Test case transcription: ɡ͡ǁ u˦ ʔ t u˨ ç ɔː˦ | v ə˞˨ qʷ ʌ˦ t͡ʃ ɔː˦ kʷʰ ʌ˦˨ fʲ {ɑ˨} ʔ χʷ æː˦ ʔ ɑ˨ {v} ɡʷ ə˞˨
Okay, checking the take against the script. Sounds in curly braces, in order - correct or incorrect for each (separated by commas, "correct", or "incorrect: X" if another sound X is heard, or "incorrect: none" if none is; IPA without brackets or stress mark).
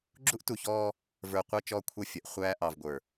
incorrect: ʌ˨, correct